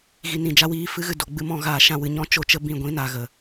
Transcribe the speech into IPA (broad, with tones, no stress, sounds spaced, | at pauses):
ɣ i˨ n ĩ˨ d͡ʒ a˧ w iː˧ f ɨ˦ ɣ ɨ˧ d o˨ ɡ͡b ɨ˧ m ɔ̃˧ ɣ aː˨ ʃ ã˧ w ɨ˨ ɲ ɔ̃˦ t͡ʃ o˦ t͡ʃ ə˦ b ĩ˧ ɡʷ ĩ˨˦ n a˨ ɣ ə˨